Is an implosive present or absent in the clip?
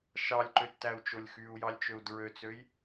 absent